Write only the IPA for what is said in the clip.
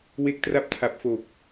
we˦˥k̚tra˦˥p̚tʰa˨˩p̚fo˨˩k̚

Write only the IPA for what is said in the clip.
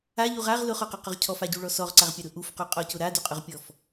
aʎuʁ aʁ lʊχɔqʊqʊʁ cʰɔfaɟuɭɔ sɔʁǀaʁpʲaɾʊ ʔufquqʼɔcʊ ɾaduqʼʊʁpʲɔf

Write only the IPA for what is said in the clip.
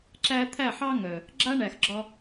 ǁæ˧ t̪ʰæ˦˨ħɑ˦ ŋœ˨ | ɡ͡ǁa˦ɳæ˨xɡ͡ǁɒ˧

